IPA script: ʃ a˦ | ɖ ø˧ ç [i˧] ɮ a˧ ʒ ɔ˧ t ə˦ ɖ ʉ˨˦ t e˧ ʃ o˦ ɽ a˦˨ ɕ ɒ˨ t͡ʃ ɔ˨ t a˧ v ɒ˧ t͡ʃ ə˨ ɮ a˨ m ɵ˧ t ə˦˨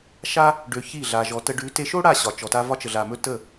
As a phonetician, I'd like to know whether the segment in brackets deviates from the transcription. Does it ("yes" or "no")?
yes